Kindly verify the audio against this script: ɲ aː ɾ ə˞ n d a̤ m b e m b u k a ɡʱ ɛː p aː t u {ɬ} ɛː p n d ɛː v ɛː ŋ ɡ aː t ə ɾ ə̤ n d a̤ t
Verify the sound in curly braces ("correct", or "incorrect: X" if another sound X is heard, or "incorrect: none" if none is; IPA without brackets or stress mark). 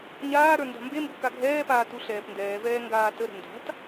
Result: correct